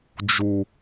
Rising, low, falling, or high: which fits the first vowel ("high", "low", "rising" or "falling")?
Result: low